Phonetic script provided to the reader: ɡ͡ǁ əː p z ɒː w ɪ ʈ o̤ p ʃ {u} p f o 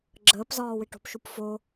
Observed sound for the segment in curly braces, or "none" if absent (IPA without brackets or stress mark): u